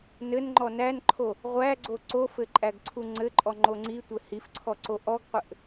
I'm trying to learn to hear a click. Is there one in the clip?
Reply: yes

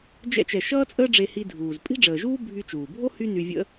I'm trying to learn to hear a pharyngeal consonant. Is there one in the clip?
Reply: no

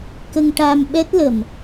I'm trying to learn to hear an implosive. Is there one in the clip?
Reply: yes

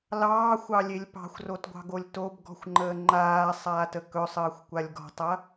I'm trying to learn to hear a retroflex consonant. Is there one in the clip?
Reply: no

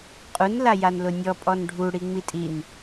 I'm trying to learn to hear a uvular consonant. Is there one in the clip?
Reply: yes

